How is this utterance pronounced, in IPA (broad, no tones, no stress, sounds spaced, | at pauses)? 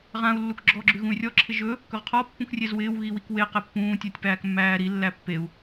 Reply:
ʁ ã u̯ lː u k ɡ͡ǁ ɔ ɡ͡ǁ ʉ ɣ ũ y̯ rʲ ɔ ǁʰ ɪ ʒ ɵ | k ɵ ʁ qʰ ɔ pː ũ k rʲ e z w ɪː w ɣ i w i k w e q ɛ pː ũː tʲ æ tʲ p æː k mː æː ɾ i lː æ pː e u̯